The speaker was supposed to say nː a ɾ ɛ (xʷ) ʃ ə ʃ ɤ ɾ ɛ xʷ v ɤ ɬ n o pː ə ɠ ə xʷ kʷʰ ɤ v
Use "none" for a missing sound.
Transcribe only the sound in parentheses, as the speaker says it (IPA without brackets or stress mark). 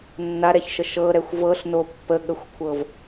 ç